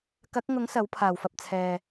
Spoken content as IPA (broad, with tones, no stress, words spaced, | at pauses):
kɐ˨˥k̚ŋʊ˨˥ŋ sɐ˨˥wpʰaː˨˩wfɐ˨p̚t͡sʰɛː˨